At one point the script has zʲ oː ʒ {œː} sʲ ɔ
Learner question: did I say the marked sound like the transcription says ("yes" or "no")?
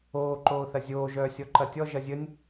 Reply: yes